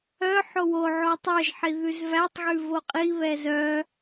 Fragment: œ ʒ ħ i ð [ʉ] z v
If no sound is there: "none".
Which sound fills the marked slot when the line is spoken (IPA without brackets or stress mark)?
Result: ʉ